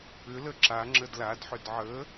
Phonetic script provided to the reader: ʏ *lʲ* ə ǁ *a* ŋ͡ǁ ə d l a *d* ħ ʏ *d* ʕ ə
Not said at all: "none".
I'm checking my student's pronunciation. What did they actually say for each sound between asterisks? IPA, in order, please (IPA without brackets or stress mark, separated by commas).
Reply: l, a, d, d